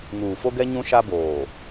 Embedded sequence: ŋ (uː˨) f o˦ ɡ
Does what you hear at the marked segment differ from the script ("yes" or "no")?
no